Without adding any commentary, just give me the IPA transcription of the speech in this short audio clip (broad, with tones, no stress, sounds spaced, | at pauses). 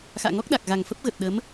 x a̰ː˧˨ ŋ ɔ˦˥ k̚ ɗ a˨˩ k̚ ɣ a˨˩ ŋ f ə˦˥ p̚ ɣ ə˨˩ t̚ ɗ ə˨˦ m